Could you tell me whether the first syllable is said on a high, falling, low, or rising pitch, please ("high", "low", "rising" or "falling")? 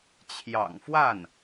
low